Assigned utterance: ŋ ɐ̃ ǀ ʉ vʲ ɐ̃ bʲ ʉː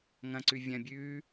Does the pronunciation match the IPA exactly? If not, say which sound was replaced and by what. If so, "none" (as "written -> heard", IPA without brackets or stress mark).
none